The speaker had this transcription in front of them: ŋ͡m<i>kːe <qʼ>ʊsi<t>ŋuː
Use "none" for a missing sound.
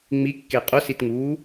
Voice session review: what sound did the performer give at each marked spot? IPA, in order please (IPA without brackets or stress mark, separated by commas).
i, qʼ, t